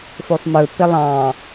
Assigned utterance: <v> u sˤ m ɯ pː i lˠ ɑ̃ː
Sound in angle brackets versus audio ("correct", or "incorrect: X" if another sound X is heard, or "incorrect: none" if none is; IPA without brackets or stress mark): incorrect: f